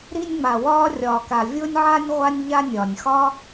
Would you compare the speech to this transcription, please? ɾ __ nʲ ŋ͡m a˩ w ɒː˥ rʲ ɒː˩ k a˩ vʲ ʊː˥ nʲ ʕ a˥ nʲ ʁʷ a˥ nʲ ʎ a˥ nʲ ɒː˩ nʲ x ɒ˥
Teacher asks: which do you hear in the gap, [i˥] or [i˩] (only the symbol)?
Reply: i˥